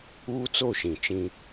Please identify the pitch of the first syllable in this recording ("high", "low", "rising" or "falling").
high